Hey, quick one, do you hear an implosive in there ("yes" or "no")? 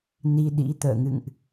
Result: yes